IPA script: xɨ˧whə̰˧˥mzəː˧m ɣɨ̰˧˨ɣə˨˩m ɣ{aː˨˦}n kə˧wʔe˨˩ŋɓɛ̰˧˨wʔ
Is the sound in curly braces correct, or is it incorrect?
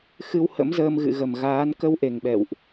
correct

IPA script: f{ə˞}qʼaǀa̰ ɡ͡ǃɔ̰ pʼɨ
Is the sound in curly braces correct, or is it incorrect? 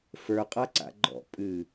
correct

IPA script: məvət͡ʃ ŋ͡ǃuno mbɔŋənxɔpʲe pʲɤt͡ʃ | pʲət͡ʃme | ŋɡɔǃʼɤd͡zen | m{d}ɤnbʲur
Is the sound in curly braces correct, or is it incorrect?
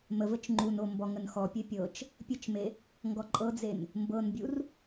incorrect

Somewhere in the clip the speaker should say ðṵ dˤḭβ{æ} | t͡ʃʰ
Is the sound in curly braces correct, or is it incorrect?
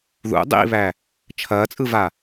correct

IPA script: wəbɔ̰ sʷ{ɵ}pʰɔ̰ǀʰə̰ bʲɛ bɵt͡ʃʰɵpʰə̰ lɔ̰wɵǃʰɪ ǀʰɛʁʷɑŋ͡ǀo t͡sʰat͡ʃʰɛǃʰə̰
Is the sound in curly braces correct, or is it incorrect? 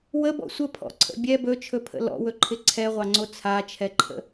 incorrect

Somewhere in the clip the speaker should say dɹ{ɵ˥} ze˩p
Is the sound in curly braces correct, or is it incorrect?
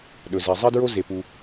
incorrect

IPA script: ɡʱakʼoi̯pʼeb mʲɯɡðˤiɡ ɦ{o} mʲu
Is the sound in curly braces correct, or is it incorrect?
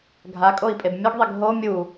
correct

